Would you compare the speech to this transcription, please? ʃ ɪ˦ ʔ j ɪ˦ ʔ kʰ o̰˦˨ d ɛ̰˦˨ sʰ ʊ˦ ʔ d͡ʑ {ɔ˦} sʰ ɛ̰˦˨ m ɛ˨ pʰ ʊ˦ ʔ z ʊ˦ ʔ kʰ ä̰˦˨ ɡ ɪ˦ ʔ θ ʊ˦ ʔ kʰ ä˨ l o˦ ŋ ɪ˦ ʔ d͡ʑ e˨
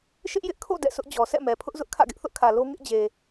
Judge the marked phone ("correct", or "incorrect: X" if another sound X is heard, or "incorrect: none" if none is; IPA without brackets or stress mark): incorrect: ɔ˨